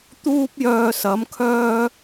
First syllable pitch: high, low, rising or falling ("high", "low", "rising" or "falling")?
high